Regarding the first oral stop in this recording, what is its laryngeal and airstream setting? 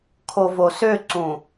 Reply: aspirated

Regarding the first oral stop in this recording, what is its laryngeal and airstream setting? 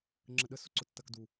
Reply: click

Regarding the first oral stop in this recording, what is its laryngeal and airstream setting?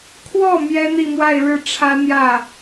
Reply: aspirated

